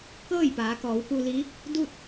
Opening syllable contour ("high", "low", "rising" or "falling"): falling